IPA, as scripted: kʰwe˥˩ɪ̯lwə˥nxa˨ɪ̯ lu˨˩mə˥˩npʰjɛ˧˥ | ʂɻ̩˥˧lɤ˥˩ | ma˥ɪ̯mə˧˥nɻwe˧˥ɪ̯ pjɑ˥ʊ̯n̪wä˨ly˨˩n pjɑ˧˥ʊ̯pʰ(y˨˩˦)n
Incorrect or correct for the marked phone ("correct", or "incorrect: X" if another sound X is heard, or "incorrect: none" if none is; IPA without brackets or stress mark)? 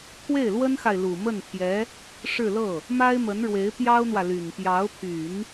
correct